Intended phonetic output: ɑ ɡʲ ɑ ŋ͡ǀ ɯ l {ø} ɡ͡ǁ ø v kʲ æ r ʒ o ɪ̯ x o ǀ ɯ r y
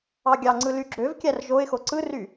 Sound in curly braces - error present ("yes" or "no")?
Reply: yes